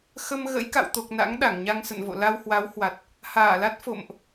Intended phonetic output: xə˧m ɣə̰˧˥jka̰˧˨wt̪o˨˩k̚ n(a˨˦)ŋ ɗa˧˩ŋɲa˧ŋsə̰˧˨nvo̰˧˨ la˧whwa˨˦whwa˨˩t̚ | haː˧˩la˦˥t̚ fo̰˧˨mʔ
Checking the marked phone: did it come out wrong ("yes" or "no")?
yes